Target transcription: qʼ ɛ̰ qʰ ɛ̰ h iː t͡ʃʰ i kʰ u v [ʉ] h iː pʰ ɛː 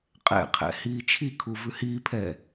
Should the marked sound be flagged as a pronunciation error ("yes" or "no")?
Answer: no